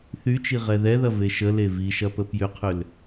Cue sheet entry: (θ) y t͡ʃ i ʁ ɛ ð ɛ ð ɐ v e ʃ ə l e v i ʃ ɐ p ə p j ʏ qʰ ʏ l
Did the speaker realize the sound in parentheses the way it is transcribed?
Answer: yes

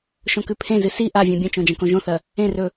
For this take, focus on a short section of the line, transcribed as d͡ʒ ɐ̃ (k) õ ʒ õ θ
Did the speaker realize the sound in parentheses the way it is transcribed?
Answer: yes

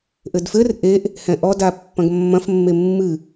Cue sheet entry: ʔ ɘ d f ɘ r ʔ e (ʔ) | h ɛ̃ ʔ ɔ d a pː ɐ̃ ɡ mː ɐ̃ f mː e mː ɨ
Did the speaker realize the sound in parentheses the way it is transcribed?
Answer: yes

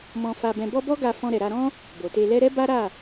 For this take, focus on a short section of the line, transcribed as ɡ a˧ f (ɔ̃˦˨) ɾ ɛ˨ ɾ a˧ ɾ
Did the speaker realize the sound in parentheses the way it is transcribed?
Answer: no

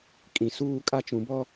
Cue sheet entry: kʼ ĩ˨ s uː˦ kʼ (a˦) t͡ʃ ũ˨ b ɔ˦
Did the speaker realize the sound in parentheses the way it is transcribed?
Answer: yes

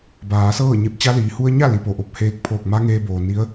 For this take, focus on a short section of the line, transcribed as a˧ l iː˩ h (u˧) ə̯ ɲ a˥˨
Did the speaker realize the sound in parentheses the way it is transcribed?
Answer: yes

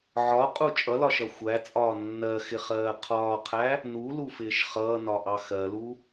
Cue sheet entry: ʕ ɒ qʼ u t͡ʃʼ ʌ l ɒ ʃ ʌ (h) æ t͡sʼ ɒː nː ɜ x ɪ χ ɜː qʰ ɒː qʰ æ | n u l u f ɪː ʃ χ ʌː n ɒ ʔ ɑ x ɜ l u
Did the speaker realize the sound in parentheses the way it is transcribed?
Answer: no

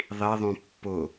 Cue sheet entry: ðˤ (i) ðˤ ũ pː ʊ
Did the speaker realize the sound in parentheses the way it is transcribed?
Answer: yes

